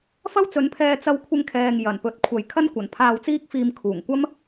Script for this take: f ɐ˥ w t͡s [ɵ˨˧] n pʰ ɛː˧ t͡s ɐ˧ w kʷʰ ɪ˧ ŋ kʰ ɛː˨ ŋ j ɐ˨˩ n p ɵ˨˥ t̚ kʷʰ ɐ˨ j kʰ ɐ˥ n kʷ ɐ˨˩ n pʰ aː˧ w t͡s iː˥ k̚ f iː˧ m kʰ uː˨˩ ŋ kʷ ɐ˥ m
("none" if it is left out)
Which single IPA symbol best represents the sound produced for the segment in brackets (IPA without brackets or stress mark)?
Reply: ɵ˨˥